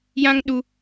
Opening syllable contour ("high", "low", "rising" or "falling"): high